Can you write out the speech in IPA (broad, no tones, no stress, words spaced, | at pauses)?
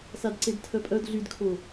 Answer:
sadǀedtʰœpʼœd ɮydkʰo